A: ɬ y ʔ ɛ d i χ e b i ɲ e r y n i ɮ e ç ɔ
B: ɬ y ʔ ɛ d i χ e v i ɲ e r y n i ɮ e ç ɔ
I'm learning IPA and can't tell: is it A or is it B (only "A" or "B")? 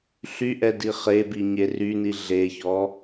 A